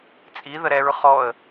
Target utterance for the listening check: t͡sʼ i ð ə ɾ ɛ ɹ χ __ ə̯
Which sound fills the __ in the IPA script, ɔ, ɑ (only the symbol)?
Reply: ɔ